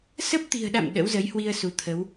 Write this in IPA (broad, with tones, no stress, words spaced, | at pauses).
sə˦˥p̚t̪i̤˨˩ə̯ɗa̰˧˨m ɗə̰˧˥wzə˨˦jhwi˧ə̯ su˨˦t̪ʰə˨˦w